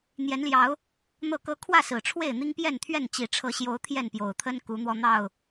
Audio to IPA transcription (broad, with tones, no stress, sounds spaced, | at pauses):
n̪ j ɛ˨˦ n l j ɑ˨˦ ʊ̯ | n̪ ɤ˥˨ k ɤ˦ kʰ w ä˥˨ s ɹ̩˨˩ ʈ͡ʂʰ w e˥˨ ɪ̯ n̪ i˦ ŋ p j ɛ˥˨ n t̪ʰ ɥ ɛ˥˨ n t͡ɕ i˨˩ ʈ͡ʂʰ ɤ˨˦ ɕ j o˨˦ ʊ̯ t̪ʰ j ɛ˥˨ n p j o˨˩ ʊ̯ t̪ʰ ə˦ n k u˨˦ n̪ w ɔ˧ n̪ ɑ˥˨ ʊ̯